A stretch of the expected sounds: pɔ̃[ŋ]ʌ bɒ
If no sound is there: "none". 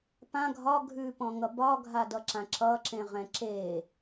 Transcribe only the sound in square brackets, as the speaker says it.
ŋ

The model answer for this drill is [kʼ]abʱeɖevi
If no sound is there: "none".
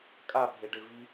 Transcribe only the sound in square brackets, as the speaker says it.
kʼ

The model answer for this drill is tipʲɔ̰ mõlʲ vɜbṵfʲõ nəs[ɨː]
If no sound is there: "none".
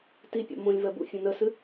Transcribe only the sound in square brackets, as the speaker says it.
ɨ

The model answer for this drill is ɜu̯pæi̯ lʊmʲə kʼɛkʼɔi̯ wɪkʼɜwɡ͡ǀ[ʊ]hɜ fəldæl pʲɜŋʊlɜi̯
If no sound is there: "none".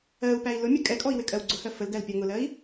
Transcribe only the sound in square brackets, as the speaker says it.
ʊ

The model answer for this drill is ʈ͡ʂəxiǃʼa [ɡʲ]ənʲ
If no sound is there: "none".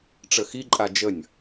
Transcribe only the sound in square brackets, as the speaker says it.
d͡ʒ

